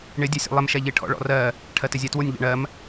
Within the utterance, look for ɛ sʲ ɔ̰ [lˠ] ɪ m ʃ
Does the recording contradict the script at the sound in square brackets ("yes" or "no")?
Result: no